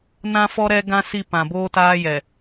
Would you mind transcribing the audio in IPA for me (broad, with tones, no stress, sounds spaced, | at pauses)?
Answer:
n ã˦ f ɔ˦ ɾ ɛ˦ ɡ ã˦ s i˦˨ p ã˨ b oː˦ t aː˦ j ɛ˨